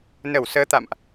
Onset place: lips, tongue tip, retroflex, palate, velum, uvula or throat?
tongue tip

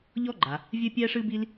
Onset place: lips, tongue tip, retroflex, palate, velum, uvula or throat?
palate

